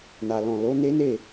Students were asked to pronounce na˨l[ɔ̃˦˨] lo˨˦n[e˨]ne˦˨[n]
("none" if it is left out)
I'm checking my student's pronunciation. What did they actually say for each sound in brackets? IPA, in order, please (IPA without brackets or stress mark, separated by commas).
ɔ̃˨, e˦, none